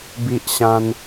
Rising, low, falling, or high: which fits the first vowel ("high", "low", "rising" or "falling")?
high